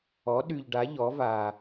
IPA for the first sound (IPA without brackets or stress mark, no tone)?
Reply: ɔ